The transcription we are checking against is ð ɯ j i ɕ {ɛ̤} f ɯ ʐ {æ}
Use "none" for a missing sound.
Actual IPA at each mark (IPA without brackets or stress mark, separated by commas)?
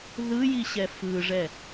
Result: ɛ, ɛ